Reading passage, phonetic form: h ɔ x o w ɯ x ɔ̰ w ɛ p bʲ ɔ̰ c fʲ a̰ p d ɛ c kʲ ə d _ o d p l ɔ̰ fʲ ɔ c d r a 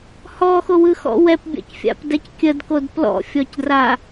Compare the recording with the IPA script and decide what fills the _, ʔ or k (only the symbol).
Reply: k